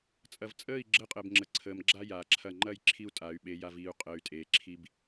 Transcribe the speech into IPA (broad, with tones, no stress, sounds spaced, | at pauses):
t͡sʼ ɐ˨ v t͡sʼ əː˦˨ i̯ ɡ͡ǁ əː˦ qʼ əː˨ b ŋ͡ǁ ə˨ ǀʰ əː˨ m ɡ͡ǁ a˦ j aː˨ ǁʰ ɐ˦˨ ŋ͡ǃ ɐ˦˨ j ǁʰ i˦ u̯ tʼ a˨˦ y̯ ɓ e˨˦ j a˨ v iː˨ u̯ qʼ əː˨ y̯ tʼ eː˨ ǁʰ i˦ b